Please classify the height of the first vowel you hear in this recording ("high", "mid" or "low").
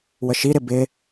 mid